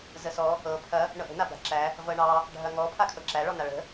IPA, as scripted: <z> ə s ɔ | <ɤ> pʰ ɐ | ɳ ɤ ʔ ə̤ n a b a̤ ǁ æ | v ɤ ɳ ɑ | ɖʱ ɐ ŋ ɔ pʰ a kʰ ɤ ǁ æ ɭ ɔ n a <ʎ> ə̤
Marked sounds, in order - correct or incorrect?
correct, correct, incorrect

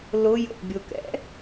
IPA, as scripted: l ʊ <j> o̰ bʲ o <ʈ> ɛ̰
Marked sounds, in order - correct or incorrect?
correct, incorrect

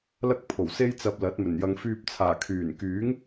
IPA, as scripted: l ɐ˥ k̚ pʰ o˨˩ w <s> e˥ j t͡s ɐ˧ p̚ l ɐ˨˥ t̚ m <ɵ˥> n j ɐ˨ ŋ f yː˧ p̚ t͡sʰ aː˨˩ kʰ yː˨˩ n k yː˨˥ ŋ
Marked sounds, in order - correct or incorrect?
correct, incorrect

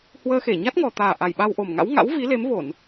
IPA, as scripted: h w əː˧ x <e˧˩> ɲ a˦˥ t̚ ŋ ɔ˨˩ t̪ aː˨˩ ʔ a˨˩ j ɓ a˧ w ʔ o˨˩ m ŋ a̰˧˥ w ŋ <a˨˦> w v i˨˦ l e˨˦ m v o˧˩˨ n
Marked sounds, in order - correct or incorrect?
correct, incorrect

